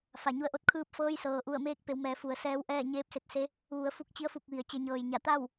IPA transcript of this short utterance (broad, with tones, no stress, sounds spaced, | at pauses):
f a˩ ɲ u˧˩ ə̯ ʔ o˧˥ t̚ kʰ ɯː˧ p̚ f ɤː˧ j s ɤː˩ ʔ u˧˩ ə̯ m eː˧ k̚ p e˩˧ w m ɛː˩˧ f u˩˧ ə̯ s ɛː˧˥ w ʔ ɛː˥˨ ɲ eː˧˥ p̚ s e˧ t̚ s e˧˥ | ʋ u˩˧ ə̯ f u˧ k̚ t͡ɕ i˧˥ ə̯ f u˧˩ k̚ ʋ i˩ ə̯ t͡ɕ e˩˧ ɲ ɤː˩ j ɲ a˧˩ t̪ a˥˨ w